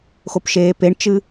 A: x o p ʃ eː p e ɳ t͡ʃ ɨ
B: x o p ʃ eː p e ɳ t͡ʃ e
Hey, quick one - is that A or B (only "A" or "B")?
A